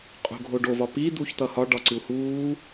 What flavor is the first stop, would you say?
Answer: ejective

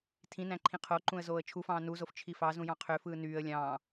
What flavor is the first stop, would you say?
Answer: aspirated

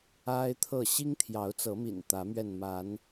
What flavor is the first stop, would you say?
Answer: aspirated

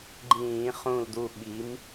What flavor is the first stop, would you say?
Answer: click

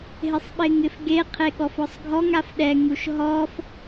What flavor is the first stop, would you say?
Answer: implosive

